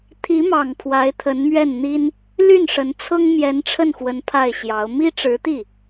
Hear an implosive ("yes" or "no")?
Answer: no